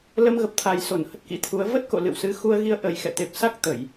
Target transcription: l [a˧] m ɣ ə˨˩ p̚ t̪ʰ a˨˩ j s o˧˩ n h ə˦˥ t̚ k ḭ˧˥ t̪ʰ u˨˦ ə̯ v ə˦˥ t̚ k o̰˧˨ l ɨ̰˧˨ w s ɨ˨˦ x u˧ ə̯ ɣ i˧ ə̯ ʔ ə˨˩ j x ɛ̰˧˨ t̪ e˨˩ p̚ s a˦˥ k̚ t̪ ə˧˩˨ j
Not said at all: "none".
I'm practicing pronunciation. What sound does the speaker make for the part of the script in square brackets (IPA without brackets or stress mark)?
ə˧